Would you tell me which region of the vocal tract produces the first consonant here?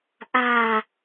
throat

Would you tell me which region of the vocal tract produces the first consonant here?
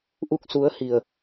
throat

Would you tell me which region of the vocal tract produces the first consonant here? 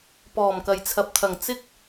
lips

